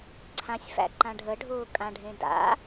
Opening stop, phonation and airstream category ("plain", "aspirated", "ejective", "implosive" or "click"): click